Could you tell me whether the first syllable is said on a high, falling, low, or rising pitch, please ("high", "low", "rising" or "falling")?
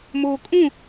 low